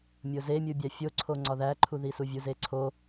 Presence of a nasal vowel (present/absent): absent